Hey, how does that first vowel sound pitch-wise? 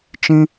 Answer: high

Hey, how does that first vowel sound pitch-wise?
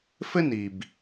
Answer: high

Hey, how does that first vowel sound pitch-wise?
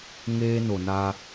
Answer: high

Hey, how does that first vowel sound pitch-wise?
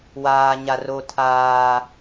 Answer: high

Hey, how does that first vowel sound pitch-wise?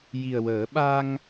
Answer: low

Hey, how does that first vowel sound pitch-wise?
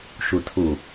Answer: low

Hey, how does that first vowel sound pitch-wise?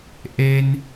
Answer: high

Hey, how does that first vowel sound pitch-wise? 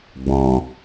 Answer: low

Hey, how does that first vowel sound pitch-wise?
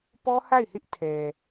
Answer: high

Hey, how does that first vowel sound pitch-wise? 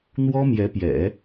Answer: high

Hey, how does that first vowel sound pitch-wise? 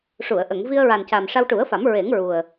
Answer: low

